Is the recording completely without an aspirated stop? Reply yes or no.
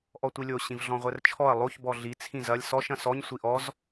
no